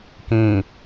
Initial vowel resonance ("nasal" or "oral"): nasal